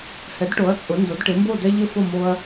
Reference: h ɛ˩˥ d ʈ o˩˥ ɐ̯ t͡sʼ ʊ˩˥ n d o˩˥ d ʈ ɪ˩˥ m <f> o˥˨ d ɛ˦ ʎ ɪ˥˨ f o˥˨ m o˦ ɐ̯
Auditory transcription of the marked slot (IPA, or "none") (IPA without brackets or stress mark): b